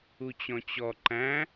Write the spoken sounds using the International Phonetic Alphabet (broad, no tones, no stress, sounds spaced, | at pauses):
u t͡ɕ ɔ̃ t͡ɕ ɔ ǃ æ̃